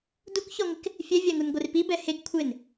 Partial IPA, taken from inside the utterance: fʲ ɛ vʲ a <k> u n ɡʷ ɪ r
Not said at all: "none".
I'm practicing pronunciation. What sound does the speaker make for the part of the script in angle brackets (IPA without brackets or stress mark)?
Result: ŋ